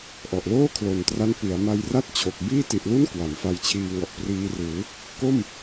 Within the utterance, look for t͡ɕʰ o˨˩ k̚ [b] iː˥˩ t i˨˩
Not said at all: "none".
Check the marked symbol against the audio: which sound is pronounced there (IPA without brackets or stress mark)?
b